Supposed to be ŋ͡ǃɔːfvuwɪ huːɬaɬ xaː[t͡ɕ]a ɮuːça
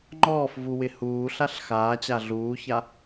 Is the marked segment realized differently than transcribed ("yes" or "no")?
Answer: no